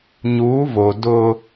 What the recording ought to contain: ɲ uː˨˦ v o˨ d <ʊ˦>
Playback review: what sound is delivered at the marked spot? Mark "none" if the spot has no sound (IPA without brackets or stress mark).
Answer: ʊ˦